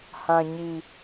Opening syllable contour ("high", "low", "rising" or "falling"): low